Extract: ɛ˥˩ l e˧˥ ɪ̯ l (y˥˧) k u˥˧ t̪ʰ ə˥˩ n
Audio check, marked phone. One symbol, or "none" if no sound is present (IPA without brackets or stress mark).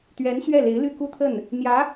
y˥˧